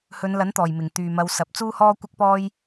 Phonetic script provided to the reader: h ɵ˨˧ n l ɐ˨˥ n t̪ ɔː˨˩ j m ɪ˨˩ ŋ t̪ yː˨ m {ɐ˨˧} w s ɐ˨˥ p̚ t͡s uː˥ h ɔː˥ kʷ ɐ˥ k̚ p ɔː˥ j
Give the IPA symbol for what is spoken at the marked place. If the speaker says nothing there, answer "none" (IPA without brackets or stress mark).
ɐ˨˧